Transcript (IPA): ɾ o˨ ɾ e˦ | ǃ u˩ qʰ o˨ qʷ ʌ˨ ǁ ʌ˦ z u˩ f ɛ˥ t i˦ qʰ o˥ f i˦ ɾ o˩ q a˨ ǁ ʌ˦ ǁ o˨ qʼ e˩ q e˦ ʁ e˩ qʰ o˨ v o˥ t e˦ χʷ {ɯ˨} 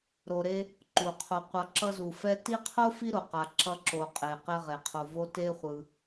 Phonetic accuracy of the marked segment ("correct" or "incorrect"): correct